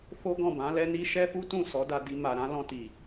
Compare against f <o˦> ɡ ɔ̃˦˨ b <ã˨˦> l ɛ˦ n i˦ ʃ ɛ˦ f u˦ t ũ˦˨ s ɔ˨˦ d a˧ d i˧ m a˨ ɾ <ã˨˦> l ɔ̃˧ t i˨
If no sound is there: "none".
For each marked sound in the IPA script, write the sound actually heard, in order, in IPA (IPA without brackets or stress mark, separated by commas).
o˦, ã˨˦, ã˨˦